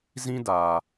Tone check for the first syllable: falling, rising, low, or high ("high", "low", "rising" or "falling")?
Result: high